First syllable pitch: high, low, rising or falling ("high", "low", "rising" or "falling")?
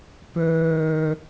low